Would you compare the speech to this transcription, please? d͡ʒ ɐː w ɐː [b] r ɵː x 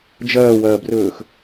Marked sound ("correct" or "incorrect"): correct